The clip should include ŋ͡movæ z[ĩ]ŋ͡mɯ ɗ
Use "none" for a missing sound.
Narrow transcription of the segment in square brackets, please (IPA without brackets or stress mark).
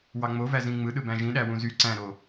ĩ